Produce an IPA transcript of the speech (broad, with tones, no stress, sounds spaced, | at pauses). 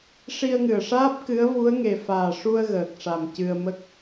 ʂ i˧ ə̯ ŋ ɨ˨˩ ə̯ ʂ aː˦˥ p̚ k ɨ˧˥ ə̯ v u˧˥ ə̯ ŋ e˨˩ f aː˨˩ ʂ u˧ ə̯ ɣ əː˨˩ k̚ ʂ a˨˩ m c ɨ˧ ə̯ m ə˦˥ k̚